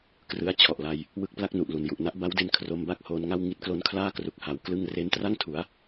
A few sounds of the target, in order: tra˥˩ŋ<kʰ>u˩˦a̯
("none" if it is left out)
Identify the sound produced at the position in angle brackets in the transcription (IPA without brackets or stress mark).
tʰ